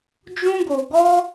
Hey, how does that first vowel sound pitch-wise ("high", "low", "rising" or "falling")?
high